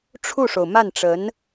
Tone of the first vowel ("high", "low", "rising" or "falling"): falling